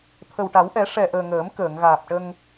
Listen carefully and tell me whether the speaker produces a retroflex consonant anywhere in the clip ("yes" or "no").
yes